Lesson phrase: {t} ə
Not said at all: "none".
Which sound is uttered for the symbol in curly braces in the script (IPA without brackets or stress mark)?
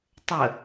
tˤ